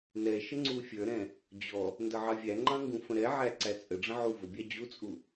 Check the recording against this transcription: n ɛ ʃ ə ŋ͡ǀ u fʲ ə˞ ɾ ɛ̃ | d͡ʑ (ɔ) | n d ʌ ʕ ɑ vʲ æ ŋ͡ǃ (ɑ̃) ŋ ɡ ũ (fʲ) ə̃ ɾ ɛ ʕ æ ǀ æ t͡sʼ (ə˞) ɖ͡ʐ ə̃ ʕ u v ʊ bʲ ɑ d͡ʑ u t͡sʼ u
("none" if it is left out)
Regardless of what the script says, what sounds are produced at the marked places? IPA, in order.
ɔ, ɑ̃, f, ə

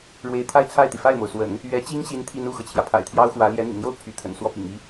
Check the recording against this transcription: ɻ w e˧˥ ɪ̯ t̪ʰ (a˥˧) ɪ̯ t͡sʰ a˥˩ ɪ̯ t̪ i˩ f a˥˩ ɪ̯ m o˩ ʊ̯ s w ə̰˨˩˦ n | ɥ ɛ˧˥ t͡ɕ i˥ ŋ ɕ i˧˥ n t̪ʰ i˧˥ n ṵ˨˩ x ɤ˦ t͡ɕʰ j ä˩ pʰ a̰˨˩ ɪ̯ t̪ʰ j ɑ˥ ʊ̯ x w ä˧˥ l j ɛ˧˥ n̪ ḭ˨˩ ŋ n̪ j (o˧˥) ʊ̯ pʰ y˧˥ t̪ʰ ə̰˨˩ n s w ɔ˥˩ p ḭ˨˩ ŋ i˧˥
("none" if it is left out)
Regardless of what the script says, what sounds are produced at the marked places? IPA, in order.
a˥˧, o˥˩

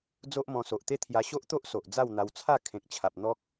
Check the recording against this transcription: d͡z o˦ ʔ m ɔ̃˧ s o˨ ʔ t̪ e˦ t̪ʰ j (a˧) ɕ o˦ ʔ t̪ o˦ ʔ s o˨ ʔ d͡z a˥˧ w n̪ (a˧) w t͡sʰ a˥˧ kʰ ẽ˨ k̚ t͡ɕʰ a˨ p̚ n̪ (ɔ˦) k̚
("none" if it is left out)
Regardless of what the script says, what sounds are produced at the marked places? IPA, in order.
a˧, a˧, ɔ˦

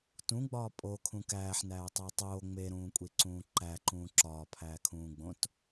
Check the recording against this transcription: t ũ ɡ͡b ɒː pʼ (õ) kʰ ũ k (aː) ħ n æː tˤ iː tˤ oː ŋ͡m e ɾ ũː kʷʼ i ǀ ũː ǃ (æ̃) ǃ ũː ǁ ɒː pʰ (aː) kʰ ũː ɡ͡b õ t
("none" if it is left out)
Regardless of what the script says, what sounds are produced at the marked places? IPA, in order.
o, æː, æ, æː

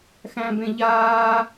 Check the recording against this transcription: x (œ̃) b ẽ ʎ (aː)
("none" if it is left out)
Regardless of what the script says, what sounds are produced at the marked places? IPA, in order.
æ̃, aː

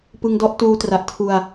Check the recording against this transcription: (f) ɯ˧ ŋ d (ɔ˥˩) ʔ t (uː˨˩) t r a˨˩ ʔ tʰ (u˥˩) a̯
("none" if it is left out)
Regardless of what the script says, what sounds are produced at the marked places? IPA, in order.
p, ɔ˦˥, uː˧, u˧

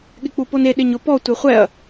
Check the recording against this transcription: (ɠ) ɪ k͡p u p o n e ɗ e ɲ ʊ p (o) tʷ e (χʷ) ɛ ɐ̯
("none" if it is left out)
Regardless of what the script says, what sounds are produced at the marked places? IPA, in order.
ɠ, ɔ, χʷ

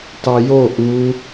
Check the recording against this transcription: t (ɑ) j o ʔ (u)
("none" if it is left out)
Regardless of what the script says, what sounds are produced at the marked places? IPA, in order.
ɑ, u

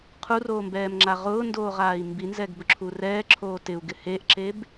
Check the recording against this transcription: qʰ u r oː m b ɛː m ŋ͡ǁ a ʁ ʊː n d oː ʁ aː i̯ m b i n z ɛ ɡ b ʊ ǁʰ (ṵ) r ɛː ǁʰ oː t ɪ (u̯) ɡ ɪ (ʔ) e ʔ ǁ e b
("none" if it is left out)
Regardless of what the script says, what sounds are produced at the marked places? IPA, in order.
u, u̯, h

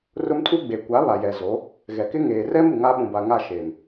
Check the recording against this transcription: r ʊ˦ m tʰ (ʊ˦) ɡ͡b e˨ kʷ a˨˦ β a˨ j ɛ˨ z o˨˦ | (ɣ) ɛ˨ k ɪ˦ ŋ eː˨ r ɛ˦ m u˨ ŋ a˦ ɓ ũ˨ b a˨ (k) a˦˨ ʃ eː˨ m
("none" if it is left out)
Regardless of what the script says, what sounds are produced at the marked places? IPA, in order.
u˦, ɣ, ŋ

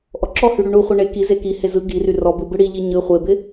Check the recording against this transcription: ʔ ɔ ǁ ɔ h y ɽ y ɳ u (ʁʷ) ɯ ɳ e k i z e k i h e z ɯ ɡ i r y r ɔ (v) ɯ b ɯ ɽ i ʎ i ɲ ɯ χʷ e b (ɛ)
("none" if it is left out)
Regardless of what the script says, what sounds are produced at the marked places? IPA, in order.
χʷ, b, ɪ

